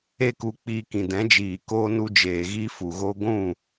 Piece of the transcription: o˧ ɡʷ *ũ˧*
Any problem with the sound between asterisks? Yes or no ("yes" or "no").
yes